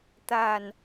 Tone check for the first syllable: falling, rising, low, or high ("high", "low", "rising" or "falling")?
low